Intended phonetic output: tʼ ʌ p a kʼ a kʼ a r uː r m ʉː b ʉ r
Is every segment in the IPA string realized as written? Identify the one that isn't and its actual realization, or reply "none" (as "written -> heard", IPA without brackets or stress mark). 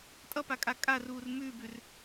none